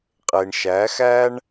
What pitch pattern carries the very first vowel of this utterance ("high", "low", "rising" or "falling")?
low